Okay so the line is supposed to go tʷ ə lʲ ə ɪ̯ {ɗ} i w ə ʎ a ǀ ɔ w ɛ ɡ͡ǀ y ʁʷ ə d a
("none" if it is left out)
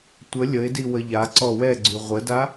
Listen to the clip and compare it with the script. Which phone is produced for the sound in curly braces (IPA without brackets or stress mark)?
d